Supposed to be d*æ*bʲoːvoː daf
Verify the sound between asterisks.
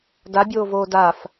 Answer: incorrect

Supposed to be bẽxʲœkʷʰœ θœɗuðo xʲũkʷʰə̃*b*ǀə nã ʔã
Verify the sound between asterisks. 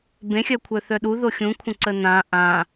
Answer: incorrect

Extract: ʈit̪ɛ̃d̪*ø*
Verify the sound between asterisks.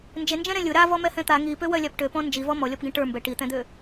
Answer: correct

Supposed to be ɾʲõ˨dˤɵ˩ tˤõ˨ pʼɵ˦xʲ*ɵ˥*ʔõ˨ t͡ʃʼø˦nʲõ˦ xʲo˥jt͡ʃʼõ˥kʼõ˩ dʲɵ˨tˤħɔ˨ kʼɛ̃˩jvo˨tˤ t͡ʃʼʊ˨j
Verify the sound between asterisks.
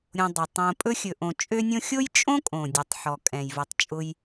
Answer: incorrect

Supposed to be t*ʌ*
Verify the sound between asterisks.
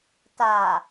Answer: incorrect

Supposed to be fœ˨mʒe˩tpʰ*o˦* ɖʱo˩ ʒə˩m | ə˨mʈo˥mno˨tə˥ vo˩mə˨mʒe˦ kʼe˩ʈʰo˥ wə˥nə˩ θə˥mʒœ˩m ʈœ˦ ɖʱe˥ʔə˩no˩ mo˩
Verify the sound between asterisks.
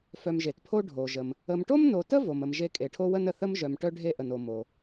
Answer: correct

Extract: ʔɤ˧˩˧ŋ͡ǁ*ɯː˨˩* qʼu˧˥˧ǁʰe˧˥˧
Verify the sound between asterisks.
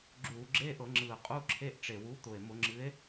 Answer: correct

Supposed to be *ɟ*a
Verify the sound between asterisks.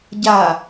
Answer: correct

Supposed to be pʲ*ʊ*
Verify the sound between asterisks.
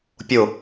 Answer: correct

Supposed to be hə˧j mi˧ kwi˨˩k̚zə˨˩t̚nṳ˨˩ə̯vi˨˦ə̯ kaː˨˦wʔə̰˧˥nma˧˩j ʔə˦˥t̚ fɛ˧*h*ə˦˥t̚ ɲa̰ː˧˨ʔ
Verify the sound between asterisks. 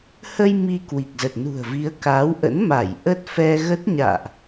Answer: incorrect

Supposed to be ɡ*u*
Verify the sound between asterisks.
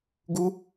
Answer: correct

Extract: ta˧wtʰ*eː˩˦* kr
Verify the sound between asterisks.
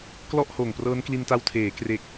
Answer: correct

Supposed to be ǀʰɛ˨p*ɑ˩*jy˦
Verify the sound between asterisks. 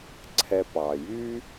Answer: correct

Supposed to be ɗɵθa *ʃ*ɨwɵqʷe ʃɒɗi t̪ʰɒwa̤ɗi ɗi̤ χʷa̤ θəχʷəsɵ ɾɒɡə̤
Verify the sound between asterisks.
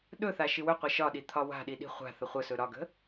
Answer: correct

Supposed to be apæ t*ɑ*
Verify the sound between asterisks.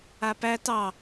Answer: correct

